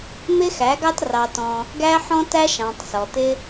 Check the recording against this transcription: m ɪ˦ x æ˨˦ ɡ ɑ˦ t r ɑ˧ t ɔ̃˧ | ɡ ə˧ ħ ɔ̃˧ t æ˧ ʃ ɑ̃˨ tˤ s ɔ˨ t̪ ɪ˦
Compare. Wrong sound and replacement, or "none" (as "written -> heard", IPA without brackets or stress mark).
ə˧ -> æ˧